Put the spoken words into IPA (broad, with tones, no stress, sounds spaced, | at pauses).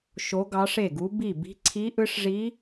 ʃ o˧˥ ɡ ɑ˧˥ ʂ e˥˩ ɡ u˧˥ b i˥˩ b i̤˧˥ ǀʰ i˧˥ ʔ ɯ˧˥ ʂ ʐ i˧˥